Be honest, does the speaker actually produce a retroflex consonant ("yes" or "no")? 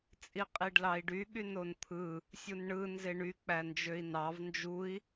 yes